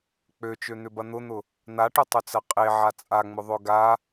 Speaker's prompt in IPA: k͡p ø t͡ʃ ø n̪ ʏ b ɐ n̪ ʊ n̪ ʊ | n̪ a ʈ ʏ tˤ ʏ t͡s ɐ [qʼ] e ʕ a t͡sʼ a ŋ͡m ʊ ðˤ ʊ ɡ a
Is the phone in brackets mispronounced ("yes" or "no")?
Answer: no